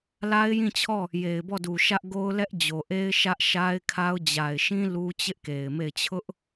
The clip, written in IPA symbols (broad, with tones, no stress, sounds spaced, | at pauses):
l a˦ ɪ̯ j ĩ˦˨ t͡ɕʰ ɔ˦˨ | j e˨ ɪ̯ b ɔ˦˨ d u˨ ʃ ä˦ ʔ ɡ o˦ ʊ̯ l ɛ˦ ʔ d͡ʑ o˨ ʔ e˦ ɪ̯ ʃ ä˦ ʔ ʃ a˦ ɪ̯ kʰ a˦ ʊ̯ d͡ʑ a˨ ɪ̯ ʃ ĩ˦ l u˦ t͡ɕ ɪ˦ ʔ k e˨ ɪ̯ m e˦˨ ɪ̯ t͡ɕʰ ʊ˦ ʔ